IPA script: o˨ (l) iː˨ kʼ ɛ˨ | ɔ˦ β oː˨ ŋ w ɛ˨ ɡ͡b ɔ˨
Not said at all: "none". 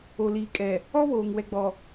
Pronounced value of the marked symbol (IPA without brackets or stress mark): l